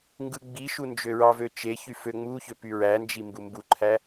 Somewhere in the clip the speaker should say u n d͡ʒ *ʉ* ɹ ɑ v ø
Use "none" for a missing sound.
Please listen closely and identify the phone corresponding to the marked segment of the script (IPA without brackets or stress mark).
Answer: ø